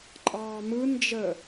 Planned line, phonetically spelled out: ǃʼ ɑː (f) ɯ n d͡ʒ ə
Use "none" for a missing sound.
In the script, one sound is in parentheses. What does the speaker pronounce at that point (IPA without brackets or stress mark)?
m